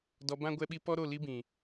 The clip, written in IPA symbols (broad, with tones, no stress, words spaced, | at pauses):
dɔ˧ bã˦ ɡʷɛ˧ɓi˧ pɔ˦ɾo˦˨ li˧bĩ˨